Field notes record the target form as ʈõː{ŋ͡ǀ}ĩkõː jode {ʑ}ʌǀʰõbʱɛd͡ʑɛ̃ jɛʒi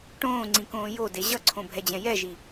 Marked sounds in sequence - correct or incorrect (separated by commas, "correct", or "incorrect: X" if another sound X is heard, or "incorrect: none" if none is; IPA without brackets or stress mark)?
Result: correct, correct